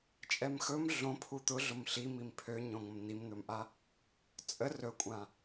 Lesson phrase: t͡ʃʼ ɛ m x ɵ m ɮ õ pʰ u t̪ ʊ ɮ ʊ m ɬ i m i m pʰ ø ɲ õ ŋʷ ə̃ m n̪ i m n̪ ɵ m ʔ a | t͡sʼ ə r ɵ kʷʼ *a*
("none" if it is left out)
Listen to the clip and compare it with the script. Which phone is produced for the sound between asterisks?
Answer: ã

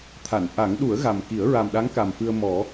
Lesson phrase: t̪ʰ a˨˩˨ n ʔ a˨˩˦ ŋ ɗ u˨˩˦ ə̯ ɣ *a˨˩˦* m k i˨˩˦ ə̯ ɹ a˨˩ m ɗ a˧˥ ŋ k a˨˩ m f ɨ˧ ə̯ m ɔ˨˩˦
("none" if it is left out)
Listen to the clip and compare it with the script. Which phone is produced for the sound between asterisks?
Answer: a˨˩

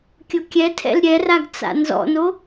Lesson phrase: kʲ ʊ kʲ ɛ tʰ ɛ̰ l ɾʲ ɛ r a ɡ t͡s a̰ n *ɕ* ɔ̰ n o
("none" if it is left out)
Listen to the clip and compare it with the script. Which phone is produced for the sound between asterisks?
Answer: z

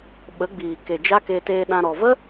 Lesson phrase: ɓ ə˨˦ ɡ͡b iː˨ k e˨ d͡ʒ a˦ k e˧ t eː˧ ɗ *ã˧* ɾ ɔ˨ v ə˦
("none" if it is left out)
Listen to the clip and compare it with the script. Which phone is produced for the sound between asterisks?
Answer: ã˧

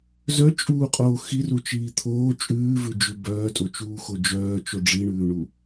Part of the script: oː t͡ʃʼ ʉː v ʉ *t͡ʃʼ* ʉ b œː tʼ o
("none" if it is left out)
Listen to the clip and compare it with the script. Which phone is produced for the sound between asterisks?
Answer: d͡ʒ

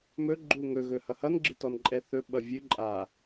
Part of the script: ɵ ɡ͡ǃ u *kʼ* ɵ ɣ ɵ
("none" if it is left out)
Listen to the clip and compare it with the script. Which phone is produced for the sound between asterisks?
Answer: ŋ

